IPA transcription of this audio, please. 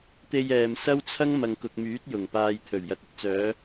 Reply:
t̪ e˧ j ɛː˨ m s ɐ˥ w t͡sʰ ɐ˥ ŋ m ɐ˨ ŋ k ʊ˨ k̚ m yː˨˥ t̚ j ʊ˨˩ ŋ p aː˧ j t̪ʰ ɵ˨˩ ɥ j ɐ˨ t̚ ɪ˧ k̚ t͡s œː˨˧

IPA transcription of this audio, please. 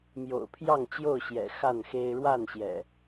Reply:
m j o̰˨˩ ʊ̯ pʰ j ɑ˥˨ ŋ t͡ɕ j o˥˨ ʊ̯ ɕ j ɛ̰˨˩ x a˥˨ n x e˦ ɪ̯ ɻ w a˥˨ n ɕ j ɛ̰˨˩

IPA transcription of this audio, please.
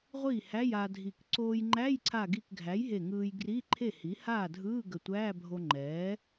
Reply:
ʁʷ i˥˩ h æ˧˥˧ j a˧ dʱ i˧˩ k ǀ oː˧ j ŋ͡ǃ æ˧˥˧ j ǀʰ a˧˩ ɡ i˧˩ k ɡʱ æ˩˥ j ɦ e˧˩ ŋ ɯː˧ j ɡ r i˧˥˧ ǃʰ e˥˩ h i˩˥ h aː˥˩ dʱ ɯː˧˥˧ ɡ ə˧˩ tʷ æː˧˥˧ bʱ o˧ ŋ͡ǃ ɛː˩˥

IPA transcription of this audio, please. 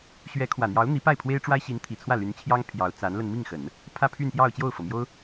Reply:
ɕ ɥ ɛ˧˥ kʰ w ä˨˩ n̪ j ɑ˧˥ ʊ̯ n̪ i˧˥ p a˥˩ ɪ̯ pʰ w e˥ ɪ̯ ʈ͡ʂ w a˥ ɪ̯ ɕ i˧˥ n t̪ʰ i˨˩ t͡sʰ w ä˥˩ l y˧˥ n t͡ɕʰ j ɑ˥ ŋ pʰ j ɑ˧˥ ʊ̯ t͡s a˧˥ n l ə˧ n m i˥˩ ŋ x ə˨˩˦ n | pʰ ä˥˧ pʰ y˥˧ n p j ɑ˥˧ ʊ̯ t͡ɕ j o˥˩ ʊ̯ f ɤ˩ m j o˥ ʊ̯

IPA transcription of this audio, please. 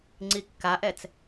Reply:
ŋ͡ǀ i kː a ʔ ɛ t͡s

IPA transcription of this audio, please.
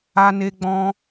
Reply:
a˧ n e˧ ɡ͡b ɔ̃˧

